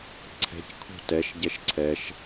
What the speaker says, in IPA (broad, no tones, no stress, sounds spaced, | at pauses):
ǀʰ ɛ̤ c kʰ o̤ t ɛ ʃ ɟ ɛ ʃ ǀʰ ɛ ʃ